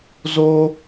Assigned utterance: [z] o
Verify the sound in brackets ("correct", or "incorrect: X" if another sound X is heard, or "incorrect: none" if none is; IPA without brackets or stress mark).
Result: correct